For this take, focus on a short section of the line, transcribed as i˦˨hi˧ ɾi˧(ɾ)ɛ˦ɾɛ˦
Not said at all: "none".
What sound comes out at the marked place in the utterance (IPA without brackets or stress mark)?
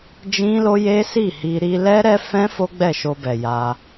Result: l